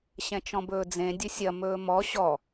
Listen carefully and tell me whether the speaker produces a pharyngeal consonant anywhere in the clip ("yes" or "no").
no